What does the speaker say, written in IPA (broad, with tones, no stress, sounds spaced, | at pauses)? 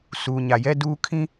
s uː˨ ɲ a˨ j ɛ˦ d uː˦ kʰ ĩ˦